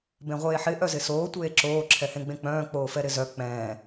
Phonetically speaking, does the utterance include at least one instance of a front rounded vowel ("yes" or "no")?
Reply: yes